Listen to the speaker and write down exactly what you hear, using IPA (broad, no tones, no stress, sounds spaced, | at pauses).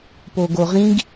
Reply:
p o ɡ o ʁ ĩ ɡ